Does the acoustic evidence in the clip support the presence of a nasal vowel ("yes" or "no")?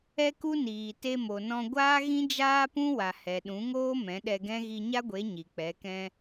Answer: yes